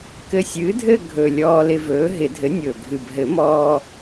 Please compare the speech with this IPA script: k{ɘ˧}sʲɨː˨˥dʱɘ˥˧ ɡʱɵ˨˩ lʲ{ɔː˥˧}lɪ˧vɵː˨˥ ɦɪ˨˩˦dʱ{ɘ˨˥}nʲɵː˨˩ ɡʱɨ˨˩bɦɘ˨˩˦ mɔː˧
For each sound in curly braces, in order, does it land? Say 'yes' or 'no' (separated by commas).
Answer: yes, no, yes